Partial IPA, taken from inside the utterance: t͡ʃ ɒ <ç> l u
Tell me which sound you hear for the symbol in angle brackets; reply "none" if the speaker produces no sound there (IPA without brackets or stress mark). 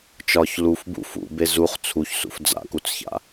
ç